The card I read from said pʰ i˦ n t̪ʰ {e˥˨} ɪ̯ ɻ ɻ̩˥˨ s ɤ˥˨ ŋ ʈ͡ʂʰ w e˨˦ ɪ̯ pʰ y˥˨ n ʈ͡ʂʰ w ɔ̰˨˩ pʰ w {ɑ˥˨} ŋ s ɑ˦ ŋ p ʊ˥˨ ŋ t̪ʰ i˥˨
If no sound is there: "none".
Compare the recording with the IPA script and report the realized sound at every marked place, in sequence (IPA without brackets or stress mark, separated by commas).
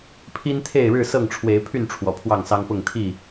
e˥˨, ɑ˥˨